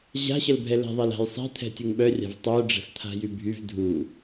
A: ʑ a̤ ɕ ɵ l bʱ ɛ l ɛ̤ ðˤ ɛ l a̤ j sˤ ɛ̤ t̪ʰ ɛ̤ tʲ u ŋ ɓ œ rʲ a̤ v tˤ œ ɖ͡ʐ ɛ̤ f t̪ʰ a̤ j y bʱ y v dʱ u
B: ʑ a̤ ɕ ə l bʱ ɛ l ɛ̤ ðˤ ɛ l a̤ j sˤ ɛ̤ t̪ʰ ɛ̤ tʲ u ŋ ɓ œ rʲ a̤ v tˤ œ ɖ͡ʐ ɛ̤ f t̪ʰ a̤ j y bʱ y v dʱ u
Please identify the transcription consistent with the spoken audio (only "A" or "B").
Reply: B